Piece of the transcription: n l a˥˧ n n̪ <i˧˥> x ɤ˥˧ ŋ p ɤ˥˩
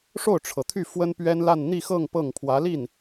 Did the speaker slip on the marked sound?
yes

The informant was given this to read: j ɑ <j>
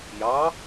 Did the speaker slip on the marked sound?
yes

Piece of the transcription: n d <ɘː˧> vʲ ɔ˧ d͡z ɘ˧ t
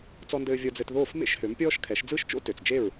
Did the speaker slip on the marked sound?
no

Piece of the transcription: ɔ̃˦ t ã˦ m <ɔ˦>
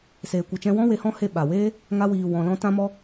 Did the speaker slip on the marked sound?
no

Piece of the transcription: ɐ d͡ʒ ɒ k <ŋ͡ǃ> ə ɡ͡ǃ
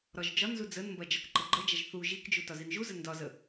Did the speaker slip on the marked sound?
yes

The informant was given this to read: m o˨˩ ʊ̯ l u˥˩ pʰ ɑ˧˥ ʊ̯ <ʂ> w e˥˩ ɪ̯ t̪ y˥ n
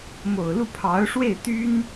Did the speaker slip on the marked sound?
no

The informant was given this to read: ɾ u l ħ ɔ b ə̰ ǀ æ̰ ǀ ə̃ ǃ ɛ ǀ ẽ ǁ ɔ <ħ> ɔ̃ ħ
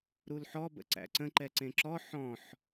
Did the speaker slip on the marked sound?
no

